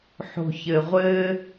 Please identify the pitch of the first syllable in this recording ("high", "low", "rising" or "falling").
low